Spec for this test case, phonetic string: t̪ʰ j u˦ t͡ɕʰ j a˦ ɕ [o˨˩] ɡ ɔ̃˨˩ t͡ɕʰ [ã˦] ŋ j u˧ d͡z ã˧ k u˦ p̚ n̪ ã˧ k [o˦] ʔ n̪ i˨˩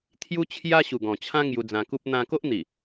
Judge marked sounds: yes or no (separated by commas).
no, yes, yes